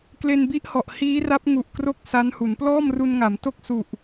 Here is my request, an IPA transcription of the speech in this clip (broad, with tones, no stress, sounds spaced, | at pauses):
k l e˧ n b i˦˥ ʔ h ɔ˨˩ ʔ h iː˦˥ r a˦˥ p̚ ŋ u˨˩ ʔ k r o˥˩ k̚ s a˦˥ n h u˩˦ n p l ɔː˥˩ m r u˧ n ŋ a˩˦ m t o˥˩ k̚ s u˨˩ ʔ